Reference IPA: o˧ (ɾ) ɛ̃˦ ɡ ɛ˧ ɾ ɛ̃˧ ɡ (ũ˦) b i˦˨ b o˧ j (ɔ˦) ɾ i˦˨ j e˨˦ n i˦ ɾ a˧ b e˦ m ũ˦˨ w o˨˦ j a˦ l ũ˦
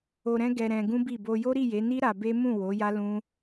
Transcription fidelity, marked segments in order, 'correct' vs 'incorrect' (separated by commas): correct, correct, incorrect